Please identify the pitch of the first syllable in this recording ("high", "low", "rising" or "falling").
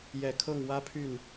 low